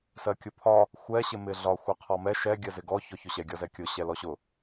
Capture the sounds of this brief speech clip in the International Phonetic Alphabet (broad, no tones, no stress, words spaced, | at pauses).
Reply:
sɜkʲʊpʰɒ | xʷɛ ɕɪmɪɮɒ xʷɛqʰɔmɛ ʃɛ ɡʲɜzɪɡɔ çɔçʊɕɛ ɡʲɒzɛkʲʊ ɕɛlɔɕʊ